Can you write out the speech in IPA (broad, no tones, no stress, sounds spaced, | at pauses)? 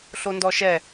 ɬ o n d ɔ ʃ ɛ